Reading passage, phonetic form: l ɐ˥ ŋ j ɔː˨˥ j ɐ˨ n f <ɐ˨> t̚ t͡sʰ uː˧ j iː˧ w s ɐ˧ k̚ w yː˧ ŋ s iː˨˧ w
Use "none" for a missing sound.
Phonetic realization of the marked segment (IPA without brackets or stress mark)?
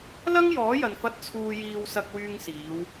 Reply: ɐ˧